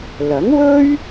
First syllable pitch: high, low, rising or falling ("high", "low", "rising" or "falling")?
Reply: rising